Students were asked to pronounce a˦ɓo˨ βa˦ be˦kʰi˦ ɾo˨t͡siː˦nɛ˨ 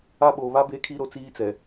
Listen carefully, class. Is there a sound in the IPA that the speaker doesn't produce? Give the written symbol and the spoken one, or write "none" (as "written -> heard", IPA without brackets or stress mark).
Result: n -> t͡s